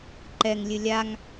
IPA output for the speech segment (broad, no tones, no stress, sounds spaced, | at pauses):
ǃ ɛ ŋ lʲ ɨ lʲ a ŋ